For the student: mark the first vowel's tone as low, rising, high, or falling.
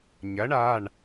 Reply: rising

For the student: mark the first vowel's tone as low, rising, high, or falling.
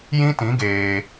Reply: high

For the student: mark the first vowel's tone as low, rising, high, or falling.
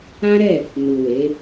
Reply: high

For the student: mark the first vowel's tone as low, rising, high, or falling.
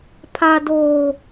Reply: high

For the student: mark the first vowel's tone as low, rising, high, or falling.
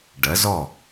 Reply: rising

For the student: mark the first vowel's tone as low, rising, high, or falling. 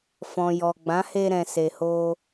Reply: low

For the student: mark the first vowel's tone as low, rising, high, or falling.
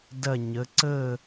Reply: falling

